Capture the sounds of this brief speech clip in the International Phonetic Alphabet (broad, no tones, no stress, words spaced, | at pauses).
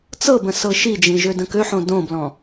t͡sɤbə̃ sɤʃid͡ʒĩ ʒødə̃køħõ dõblɔ̃